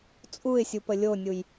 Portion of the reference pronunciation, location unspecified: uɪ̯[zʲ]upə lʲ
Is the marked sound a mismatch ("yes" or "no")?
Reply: yes